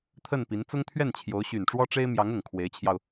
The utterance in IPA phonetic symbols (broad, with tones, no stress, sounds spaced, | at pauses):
t̪ʰ ə˥˩ n p i˧˥ n t͡s ʊ˥ ŋ t̪ʰ ɥ ɛ˥˩ n t͡ɕʰ j o˧˥ ʊ̯ ɕ y˨˩ n ʈ͡ʂ w ɔ˥ ʈ͡ʂ e˥ ɪ̯ m j ɑ˧˥ ŋ ʊ˨˩ ŋ kʰ w e˧˥ ɪ̯ t͡ɕʰ j ɑ˧ ʊ̯